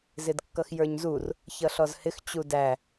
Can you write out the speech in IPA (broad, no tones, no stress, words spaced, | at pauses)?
zɪdkːʌxjə˞ɲzur | çʌɬɔzhɪx t͡ɕudæ